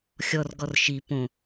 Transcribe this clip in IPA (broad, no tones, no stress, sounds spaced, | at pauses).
xʲ ɔ r ɡ ɔ r ʃ i p õ